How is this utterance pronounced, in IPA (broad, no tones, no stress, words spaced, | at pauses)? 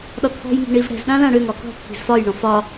ɗɒt̪ʰɔ̤jŋi̤ ɳivɽɛ̤zɗã lãɽøŋɒ kɔ̤ t̪ʰi̤zfɒjɳɔ̃ fɒ